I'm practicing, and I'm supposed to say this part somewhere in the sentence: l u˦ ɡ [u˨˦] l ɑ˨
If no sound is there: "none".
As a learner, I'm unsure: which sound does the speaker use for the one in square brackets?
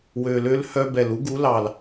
u˨˦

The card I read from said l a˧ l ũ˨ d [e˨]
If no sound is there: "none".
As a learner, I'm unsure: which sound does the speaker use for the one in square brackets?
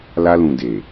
e˨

